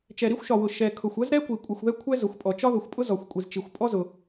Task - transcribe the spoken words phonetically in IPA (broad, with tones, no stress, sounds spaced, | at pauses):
t͡ʃ ɛ˩ ɾ i˥ xʷ ʃ ɒ˩ w ʊ˩ ʃ ɛ˩ kʰ ʊ˩ xʷ ɜ˥ z ɾ ɛ˥ kʷ i˩ kʷʼ i˩ xʷ ð ɛ˥ kʷʰ ɛ˥ z ʊ˩ xʷ pʼ ɔ˩ t͡ʃ ɒ˥ ð ʊ˩ xʷ pʼ ʊ˥ z ɔ˩ xʷ kʷʼ i˩ z t͡ʃ i˩ xʷ pʼ ɔ˥ z ʊ˩